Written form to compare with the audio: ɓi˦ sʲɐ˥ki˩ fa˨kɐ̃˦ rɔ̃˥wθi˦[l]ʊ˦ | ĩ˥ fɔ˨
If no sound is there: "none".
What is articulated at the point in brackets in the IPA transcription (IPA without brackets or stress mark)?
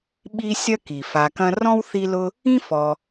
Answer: l